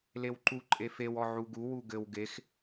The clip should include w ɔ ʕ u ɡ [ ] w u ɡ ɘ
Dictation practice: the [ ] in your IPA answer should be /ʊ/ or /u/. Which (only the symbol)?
u